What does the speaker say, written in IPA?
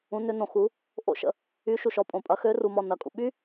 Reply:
ũ˨˦ n ʏ˨˦ n õ˨ x u˨˦ | ʔ o̰˦ ʃ ə̰˨˦ | y˨˦ ʃ u˨ ʃ ɔ˨˦ pʼ õ˨ pʼ ɐ˨˦ x ø˨˦ r u˨ m ɔ˨ n ɐ˨ kʼ ṵ˨ ɓ y˦

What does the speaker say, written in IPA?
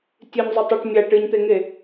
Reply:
tʲ ɨ ɲ zˤ ɵ tˤ ɨ ʈ mʲ a ʈ ɨ ɲ t̪ e ŋ e

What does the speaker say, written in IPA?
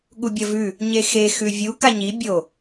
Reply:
ɠ u bʲ ɐ v ʉ | ɲ e x e x ʉ vʲ u k a ɲ i bʲ o

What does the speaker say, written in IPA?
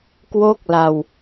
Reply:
k w o˥˩ k̚ l a˧ w

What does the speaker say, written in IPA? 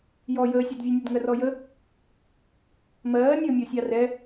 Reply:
j ɔ j əː sʲ ɑ d vʲ ɛ nʲ ɛ d ŋ ɜ r ɔ j ə | m ɜː nʲ əː mʲ ɔ sʲ ɑ r ɛ

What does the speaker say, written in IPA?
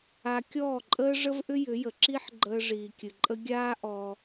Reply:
a˧ kʲ ɔː˦˨ ǃʼ əː˦ ʐ ə˦ v ʔ ʏ˦ j ʏ˨˦ j ə˨ ǁ i˦ ħ ɡ͡ǃ əː˧ ʐ iː˨ kʲ ɨ˨ ǃʼ ə˧ ɡʲ aː˦ ʔ ɔ˧

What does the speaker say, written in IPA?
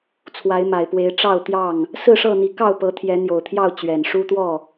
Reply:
t͡sʰ w a˨˦ ɪ̯ m a˨˩ ɪ̯ p w e˨˦ ɪ̯ ʈ͡ʂ ɑ˥˨ ʊ̯ t̪ j ɑ˥˨ ŋ | s ɹ̩˥˨ ʂ ɤ˥˨ n̪ i˨˦ k ɑ˥˨ ʊ̯ p ɤ˨˦ t̪ʰ j ɛ˨˦ n̪ j o˨˩ ʊ̯ t̪ʰ j ɑ˥˨ ʊ̯ t͡ɕ ɥ ɛ˨˩ n ʂ u˦ t̪ w ɔ˥˨

